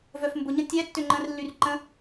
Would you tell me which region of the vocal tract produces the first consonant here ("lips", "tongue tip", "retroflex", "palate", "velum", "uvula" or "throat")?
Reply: lips